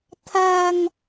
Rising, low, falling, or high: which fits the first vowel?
low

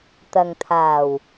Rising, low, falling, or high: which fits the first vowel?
low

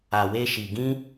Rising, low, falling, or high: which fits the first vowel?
low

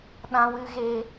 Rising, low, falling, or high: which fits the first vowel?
high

